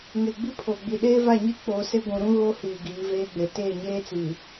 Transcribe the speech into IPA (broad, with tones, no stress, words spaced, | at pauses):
ŋe˨ɡ͡bi˦pʰo˨ɡ͡bi˨ ɗeː˦va˦˨ɲi˦ k͡poː˨se˦ ɡʷũ˨ɾũ˦ ɣo˦ hiː˨ ɡiː˨˦veː˦ɡ͡be˨ teː˦˨ɲeː˦t͡siː˨